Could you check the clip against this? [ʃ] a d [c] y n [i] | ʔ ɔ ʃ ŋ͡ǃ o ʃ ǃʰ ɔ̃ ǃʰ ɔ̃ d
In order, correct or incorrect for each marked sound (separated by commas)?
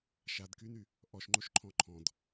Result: correct, incorrect, incorrect